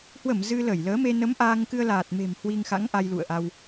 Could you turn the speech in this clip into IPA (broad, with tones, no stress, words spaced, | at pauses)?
hwə˧˩m zɨ˧lə˧˩jləː˨˦me˧ nə˨˦m ʔaː˧ŋkɨ˧ə̯laː˨˩t̚me̤˨˩m hwi˧ŋxa̰˧˥ŋ ʔa˧jlṵ˧˨ə̯ʔa˧w